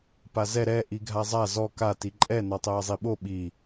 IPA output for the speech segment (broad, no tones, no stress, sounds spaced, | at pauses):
p a z ɛ ɾ ɛ ʔ i ɡʱ a zˤ a z ɔ k a t i ǃʼ ɛ n ɔ tˤ ɛː zˤ i ɓ o ɓ i